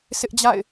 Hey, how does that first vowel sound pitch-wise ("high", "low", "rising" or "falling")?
high